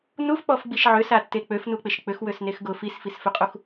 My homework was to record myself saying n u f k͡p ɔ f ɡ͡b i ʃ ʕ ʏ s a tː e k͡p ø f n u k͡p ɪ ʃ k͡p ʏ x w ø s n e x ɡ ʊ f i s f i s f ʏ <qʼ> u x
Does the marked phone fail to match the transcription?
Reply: no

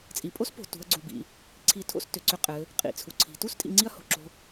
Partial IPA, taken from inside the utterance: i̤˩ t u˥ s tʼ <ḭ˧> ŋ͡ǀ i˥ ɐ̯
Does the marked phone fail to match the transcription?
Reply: no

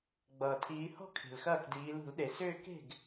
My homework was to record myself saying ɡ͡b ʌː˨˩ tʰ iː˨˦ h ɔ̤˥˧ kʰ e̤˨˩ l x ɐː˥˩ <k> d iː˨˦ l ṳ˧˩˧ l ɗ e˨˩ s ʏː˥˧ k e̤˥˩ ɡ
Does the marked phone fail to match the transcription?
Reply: no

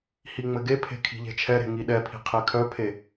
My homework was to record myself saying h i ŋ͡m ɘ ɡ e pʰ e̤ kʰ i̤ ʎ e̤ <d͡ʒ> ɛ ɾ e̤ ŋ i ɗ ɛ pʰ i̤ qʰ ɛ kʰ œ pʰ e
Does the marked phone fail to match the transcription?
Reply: yes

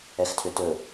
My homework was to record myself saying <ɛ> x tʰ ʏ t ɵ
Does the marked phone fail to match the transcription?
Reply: no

